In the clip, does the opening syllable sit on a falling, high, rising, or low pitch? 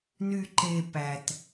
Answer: low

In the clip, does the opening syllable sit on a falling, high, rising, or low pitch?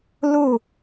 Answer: falling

